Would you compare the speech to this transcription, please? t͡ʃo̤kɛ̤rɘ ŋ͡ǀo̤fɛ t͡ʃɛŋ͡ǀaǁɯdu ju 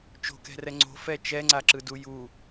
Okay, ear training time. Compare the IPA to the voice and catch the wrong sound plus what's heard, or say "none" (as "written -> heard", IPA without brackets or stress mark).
ɘ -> ɛ